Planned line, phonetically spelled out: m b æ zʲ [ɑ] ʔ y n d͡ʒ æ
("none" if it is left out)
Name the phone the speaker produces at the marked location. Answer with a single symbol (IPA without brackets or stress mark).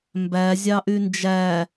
ɑ